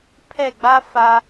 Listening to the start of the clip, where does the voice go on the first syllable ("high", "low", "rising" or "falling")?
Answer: falling